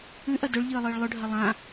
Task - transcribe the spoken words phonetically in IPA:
ʉʔɐ dɵɭʎɨːlˠɨːɭ lˠɵɖʱɐ lˠã

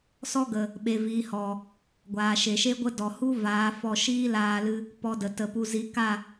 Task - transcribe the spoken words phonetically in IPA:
sɔ˦ɡə˨ | ɓe˨viː˨hɔ˨ | ɡʷaː˨ʃe˨ ʃe˦ɡʷə˦dɔ˨ hu˦ vaː˨˦fɔ˧ ʃiː˦laː˧lɨ˧ | pɔ˧ də˨tə˧pu˦ zi˨˦ka˦˨

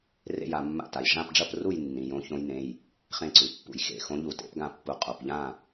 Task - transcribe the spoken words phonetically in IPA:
rḛ˥˨ja˥˨mːa̰˥˨ta˩˧˩j ʐã˥˨pɖ͡ʐɐ˥˨pru˥˨j nːĩ˩˧˩jõ˧˥çõ˧˥jnẽ˩˧˩j | χẽ˥˨ǀʉ˩˧˩pːṵ˧˩j xḛ˧˩xõ˧˥ ʎu˧˩tḛ˧˥pɡã˥˨pːu˧˩ qʼo˩˧˩pʎã˥˨

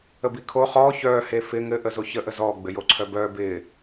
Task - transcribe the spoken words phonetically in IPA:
əbikʰo χɔː çœː hefɪ ŋɘ ʔəzoçə ʔəzɔː ɡ͡bɘjoǀʰœbœː bɪː

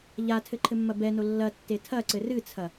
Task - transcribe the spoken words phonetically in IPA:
ʎatʰɘ ǃʰɘmːɐbɛno lːɐtːe tʰɐǀɘ rɨt͡sʰɐ

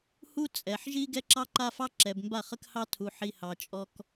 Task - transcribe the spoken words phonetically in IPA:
hu˦ t͡sʼɛ˨ħʒi˦ ɡɛ˦ǁɑ˦ǃa˦fɑ˦ ǁɛ˨bmba˦˨χə˦khɑ˦ tʰu˨ħi˨ hɑ˨t͡ʃʼɔ˨k

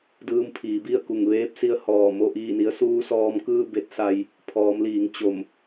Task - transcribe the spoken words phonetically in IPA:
dɯː˧mpʰiː˩˧bi˥˨ə̯ku˧˩ŋ ʋeː˧˥p̚si˧ə̯ hɔː˧˩ mo˥˨ʔiː˥˨ni˧˥ə̯ suː˧˥sɔː˧mkɯː˥˨ be˧˥t̚sa˧j | pʰɔː˩˧mliː˩˧ŋ t͡ɕo˧˩m

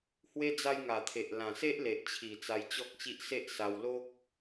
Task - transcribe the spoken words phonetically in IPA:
hwe˦ d͡za˧jŋa˨˩t̪ʰe˨ʔ lã˨˩se˦ʔle˨ʔt͡ɕʰi˨˩ t͡sa˧jt͡ɕɔ˦k̚t͡ɕi˦ʔ se˦ʔsa˧w lo˦k̚

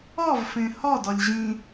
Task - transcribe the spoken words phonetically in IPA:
ɒvfẽ hɒdɒlʲ ʑĩ

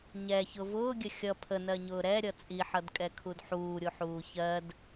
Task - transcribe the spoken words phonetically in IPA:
ɲɛçʊ vʊːɡʲə xʲʌ pʰənɜɲʊː ɾɛɾʲʌ t͡sʼiħʌdkʼɛkʰud ħuːɾʲuħuː çɜd

